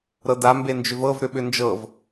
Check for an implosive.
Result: present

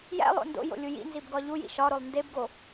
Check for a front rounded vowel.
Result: absent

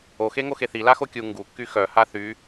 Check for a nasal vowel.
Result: absent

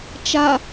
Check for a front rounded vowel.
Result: absent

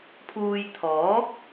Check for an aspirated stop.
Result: present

